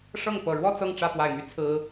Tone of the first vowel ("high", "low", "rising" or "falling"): falling